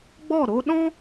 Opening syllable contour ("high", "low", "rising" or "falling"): falling